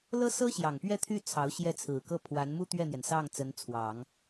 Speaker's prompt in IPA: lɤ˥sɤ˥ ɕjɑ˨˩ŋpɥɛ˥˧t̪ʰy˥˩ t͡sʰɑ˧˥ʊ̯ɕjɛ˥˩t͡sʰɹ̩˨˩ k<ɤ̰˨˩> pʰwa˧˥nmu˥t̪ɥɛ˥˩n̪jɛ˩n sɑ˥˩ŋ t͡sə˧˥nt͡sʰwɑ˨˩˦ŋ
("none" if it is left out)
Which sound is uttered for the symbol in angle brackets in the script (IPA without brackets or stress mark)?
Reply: ɤ˥˩